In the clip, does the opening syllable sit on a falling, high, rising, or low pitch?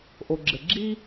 low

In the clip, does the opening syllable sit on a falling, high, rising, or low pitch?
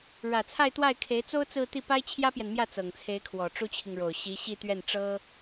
low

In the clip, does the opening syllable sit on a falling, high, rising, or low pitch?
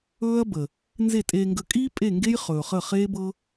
high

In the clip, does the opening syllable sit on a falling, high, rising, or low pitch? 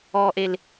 low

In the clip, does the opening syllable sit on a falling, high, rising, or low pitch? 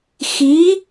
rising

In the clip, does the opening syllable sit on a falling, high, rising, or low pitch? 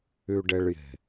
low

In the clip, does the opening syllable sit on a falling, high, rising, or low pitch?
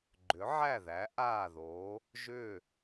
rising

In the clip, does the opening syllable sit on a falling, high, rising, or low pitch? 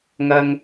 high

